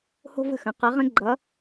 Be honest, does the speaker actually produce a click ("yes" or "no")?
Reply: yes